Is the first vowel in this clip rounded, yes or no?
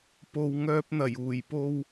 yes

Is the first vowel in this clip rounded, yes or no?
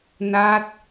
no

